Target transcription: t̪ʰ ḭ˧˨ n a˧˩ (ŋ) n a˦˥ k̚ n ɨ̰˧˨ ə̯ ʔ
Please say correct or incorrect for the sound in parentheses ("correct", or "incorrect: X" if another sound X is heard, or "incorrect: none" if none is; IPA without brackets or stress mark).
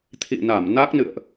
incorrect: m